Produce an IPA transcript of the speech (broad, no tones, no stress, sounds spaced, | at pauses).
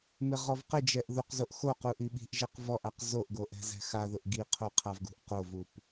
m ɪ ʁ ɔ v q ɪ d͡ʒ ɛ ʔ ð u q z o ʔ x o q u ʔ i ɓ i̤ ʔ ʒ ɛ q v ɔ ʔ a q z o ʔ ɡ o ʔ ɛ̤ z ɛ̤ x a ð ʊ ʔ ɡ i qʰ o qʰ a v ɡ ṳ ʔ q o v u p